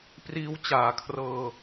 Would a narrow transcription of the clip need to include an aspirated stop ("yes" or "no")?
yes